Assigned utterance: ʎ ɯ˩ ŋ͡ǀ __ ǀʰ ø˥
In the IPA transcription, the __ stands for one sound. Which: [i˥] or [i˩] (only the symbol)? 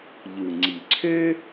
i˩